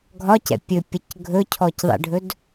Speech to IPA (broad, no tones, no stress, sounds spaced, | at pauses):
ɡʱ ɒ c ɛ̰ pʲ ɵ pʲ ʌ c ɡʱ ɵ cʰ ɔ c ðˤ ḛ ɖʱ ɵ d